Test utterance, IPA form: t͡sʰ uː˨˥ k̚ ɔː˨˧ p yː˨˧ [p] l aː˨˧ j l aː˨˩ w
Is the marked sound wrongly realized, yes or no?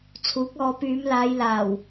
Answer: yes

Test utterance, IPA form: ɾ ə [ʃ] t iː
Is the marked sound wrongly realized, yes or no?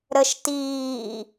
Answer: no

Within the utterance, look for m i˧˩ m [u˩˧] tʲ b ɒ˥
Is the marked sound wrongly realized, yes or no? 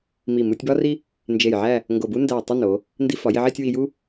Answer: yes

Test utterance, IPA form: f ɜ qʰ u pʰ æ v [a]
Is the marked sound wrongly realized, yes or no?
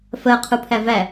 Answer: yes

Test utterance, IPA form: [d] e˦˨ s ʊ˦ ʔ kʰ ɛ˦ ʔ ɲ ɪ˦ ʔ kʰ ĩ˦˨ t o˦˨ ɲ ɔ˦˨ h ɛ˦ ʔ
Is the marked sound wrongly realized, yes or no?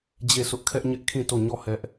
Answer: yes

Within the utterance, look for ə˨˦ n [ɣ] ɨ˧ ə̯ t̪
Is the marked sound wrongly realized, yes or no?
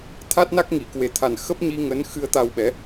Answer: yes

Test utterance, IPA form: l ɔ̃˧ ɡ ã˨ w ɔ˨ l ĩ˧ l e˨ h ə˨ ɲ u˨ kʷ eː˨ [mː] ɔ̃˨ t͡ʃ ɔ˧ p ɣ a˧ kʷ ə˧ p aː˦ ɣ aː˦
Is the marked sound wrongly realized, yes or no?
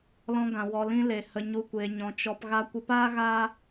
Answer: yes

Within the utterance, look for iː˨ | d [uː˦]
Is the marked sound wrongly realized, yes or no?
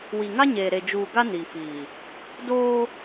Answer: yes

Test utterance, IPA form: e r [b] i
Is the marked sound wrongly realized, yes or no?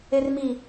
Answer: yes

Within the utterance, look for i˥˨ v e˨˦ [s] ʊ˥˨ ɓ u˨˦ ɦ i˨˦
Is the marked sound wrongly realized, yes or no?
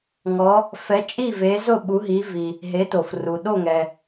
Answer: yes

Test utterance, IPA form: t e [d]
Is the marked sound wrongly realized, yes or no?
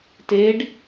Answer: yes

